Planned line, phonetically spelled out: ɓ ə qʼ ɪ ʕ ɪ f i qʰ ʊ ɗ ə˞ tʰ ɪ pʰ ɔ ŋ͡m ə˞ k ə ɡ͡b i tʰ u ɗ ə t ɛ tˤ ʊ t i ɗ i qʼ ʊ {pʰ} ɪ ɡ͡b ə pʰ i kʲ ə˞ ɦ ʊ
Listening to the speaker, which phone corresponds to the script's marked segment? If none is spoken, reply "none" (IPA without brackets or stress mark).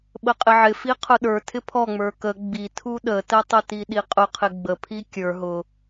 qʰ